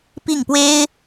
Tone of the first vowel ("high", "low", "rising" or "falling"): falling